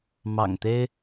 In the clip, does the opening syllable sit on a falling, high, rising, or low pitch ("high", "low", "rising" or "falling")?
low